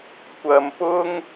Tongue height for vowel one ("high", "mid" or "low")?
low